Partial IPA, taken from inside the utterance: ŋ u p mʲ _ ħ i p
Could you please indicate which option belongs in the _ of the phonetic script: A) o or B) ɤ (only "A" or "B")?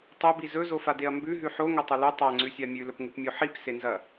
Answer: A